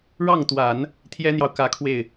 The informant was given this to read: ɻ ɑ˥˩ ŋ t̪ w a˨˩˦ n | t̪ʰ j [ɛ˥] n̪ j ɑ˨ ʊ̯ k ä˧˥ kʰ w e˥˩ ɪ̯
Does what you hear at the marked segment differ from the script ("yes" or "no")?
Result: no